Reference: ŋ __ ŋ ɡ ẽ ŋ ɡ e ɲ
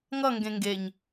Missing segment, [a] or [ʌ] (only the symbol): ʌ